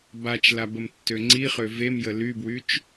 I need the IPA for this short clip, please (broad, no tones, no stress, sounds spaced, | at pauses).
b a t͡ʃ l a b ə m tː ø ŋ͡ǀ i χ ø v e m j ə l y b w y t͡ʃ